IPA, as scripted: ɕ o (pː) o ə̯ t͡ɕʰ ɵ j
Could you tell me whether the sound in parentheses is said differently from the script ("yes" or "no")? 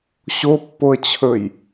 no